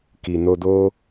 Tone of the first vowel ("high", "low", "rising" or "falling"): low